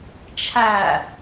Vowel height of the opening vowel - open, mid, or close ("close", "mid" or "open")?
open